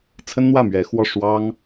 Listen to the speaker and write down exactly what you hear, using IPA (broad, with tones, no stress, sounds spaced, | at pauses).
t͡sʰ ə˥ n n̪ w ä˥˩ m ɥ ɛ˧˥ x w ɔ˥˩ ʂ w ɑ˥ ŋ